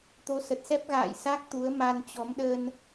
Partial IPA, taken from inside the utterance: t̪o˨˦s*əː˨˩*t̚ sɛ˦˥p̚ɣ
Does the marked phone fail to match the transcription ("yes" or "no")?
yes